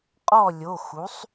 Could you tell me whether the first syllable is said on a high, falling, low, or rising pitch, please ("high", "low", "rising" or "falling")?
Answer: falling